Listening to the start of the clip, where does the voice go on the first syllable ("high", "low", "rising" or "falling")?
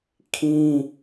high